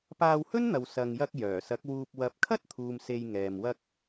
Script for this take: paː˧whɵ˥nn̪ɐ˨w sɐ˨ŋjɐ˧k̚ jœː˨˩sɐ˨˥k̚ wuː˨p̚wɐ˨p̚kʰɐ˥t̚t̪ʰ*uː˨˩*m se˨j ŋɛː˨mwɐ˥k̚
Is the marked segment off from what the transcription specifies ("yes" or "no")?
yes